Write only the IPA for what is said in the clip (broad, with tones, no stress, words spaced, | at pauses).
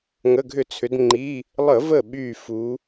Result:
ŋə˩˧˩ɡʱʏ˧˩˧t͡sʰʏ˩˧dŋ͡ǃi˩˧˩ | lˠə˧˩˧və˧˩ ɓy˧˩fu˩˧